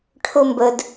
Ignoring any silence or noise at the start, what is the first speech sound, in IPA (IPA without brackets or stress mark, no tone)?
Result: ʈʰ